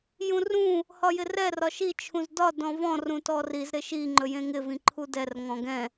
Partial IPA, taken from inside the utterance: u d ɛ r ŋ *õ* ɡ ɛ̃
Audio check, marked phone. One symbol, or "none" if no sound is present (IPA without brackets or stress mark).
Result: ɔ̃